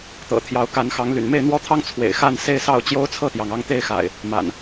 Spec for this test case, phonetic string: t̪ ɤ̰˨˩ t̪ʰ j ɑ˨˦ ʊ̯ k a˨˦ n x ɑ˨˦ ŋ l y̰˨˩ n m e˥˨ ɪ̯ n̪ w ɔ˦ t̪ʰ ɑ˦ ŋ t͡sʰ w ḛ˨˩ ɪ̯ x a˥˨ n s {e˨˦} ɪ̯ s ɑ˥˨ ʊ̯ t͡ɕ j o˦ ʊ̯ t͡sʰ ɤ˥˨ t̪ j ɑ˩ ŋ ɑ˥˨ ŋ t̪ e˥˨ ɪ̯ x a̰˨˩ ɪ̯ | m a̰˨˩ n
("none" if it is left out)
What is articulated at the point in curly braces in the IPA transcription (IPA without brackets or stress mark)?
e˥˨